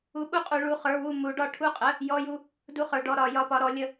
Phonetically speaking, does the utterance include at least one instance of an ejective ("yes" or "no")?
yes